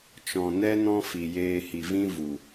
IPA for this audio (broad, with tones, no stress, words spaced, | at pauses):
t͡ʃɔ̃˨nɛ˦ nɔ̃˦fi˨jeː˧ hi˨vĩ˦ vu˨